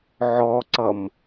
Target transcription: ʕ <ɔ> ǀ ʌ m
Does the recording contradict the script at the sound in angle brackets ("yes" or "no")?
no